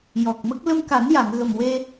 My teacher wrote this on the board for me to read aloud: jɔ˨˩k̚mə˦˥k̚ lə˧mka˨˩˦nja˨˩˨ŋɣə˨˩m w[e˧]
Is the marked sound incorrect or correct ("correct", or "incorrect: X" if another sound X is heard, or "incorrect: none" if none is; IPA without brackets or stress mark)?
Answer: correct